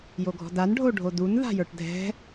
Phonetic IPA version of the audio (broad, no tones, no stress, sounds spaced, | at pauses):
j o ɡʱ ɔ̤ d a n ɖʱ o ɖʱ o d u n ð a̤ j ə˞ ʈ dʱ ɛ̤